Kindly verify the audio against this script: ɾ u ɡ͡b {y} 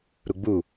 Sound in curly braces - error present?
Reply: yes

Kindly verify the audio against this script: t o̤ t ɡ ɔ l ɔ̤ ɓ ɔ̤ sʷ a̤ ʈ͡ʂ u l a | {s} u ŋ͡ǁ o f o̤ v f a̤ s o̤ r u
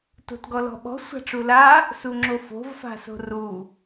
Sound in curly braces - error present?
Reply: no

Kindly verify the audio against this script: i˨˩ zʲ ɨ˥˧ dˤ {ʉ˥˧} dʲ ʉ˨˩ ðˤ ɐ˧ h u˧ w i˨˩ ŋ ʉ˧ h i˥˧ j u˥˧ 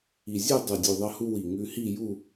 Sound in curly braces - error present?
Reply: yes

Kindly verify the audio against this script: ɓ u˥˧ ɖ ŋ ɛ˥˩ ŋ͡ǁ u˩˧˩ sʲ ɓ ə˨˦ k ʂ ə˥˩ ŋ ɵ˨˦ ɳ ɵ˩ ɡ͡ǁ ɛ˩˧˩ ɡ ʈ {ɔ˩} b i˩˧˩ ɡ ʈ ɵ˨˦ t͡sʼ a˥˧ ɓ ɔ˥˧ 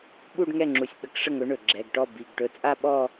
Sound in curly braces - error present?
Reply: yes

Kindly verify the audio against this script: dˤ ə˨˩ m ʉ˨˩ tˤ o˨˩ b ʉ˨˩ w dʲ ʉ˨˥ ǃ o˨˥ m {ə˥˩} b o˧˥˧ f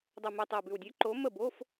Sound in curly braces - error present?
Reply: no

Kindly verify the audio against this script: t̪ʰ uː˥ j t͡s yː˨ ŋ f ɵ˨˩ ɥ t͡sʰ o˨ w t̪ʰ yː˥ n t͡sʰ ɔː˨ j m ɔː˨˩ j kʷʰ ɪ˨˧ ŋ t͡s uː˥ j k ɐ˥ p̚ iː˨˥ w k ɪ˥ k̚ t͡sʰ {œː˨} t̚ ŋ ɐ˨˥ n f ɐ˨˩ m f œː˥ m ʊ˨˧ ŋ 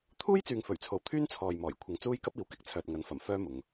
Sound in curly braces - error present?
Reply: no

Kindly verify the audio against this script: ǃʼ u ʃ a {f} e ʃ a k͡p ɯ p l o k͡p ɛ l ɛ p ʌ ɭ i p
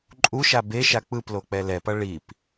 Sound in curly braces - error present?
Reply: yes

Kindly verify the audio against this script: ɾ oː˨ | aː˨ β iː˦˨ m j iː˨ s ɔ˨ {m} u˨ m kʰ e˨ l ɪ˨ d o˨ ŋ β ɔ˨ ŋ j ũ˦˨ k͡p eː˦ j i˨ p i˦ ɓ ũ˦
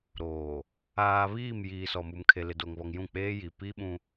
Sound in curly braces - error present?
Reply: no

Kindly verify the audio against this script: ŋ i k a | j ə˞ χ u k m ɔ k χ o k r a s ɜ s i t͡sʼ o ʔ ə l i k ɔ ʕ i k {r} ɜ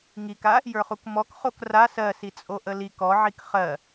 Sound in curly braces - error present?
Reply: yes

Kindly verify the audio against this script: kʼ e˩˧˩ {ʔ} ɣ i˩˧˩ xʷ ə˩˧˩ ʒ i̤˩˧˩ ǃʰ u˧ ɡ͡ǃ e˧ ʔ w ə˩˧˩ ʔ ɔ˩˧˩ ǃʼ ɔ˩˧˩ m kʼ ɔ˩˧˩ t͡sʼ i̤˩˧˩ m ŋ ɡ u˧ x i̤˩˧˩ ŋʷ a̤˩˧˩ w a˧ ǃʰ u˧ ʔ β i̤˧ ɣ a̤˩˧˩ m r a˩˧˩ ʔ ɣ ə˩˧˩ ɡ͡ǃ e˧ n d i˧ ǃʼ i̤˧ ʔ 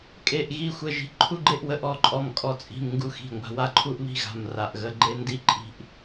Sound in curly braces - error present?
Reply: no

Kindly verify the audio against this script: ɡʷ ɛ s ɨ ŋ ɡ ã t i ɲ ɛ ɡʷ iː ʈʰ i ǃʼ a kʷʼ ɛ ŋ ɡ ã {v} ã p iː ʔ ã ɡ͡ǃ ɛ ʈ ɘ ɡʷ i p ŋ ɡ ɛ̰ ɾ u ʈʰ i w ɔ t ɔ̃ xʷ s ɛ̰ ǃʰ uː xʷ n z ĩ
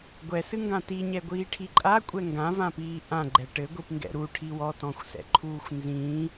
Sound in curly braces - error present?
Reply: no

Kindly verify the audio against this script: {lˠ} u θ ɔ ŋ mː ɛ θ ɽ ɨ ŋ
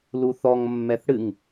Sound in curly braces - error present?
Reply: yes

